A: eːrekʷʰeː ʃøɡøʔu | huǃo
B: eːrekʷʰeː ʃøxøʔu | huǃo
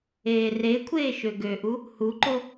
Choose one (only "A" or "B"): A